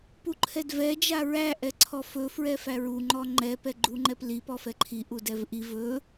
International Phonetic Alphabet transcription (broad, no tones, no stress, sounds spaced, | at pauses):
p u ǃʰ ɛ d v ɛ d͡ʒ a ɹ æ ʔ ɛ ǀʰ ɔ f ɵ f ɹ ɛ f æ ɹ u ŋ͡ǃ ɔ ŋ͡ǃ ɛ p ɛ ɡ͡ǃ u ŋ͡ǃ ɛ p l i p ɔ f ɛ ǃʰ i ʔ u d ɛ v ʔ i v ɵ